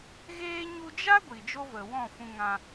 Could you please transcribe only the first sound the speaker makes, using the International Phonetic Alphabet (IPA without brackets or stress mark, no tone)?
ɣ